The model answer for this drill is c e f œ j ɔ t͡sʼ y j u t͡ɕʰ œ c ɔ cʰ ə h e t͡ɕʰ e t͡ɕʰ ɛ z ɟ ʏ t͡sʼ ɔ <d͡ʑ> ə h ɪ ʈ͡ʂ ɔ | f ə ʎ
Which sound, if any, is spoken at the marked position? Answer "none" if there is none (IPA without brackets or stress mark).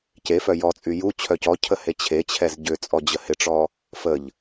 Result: d͡ʑ